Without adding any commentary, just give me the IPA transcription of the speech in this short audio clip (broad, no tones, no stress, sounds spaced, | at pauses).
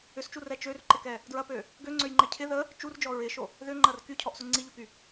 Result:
ʏ s t͡ʃ u r ɛ t͡ʃ ø r ǃ ɪ k ɛ | d ɹ ɐ p ø | ɡ ø ŋ͡ǀ ø j ŋ͡ǃ ɛ cʰ ɪ ð ə | t͡ʃ u r d͡ʒ ɔ ɹ ɪ ʃ o | ð ʏ ŋ͡ǃ ɐ r k y cʰ ɔ ʔ s ʊ ŋ͡ǀ i ʎ u k y